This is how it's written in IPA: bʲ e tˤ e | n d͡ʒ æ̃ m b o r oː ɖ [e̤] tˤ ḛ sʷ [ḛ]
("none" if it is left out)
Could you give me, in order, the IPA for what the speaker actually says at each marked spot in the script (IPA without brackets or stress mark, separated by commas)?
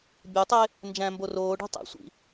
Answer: e̤, ḭ